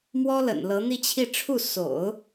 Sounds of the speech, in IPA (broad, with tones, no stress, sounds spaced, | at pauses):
m w ɔ˥ l ə̰˨˩ n l ɤ˧˥ n̪ i˥˧ t͡ɕʰ i˥˧ ʈ͡ʂʰ u˥˩ s o̰˨˩˦ ʊ̯